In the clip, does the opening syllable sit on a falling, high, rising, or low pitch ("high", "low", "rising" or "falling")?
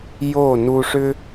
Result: falling